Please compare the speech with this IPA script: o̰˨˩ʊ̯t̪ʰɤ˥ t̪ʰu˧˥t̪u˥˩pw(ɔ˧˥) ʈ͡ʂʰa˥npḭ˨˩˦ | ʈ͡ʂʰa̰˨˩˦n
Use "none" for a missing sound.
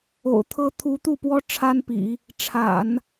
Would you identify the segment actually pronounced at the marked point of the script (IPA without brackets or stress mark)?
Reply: ɔ˥